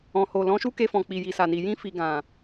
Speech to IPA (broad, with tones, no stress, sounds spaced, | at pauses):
ɔ̃˨ h o˨ l ɔ̃˨˦ ʃ u˦ k e˧ f ɔ̃˨ k͡p i˨ j i˨ s a˨ n i˨ j ĩ˧ f i˨ ɡ ã˨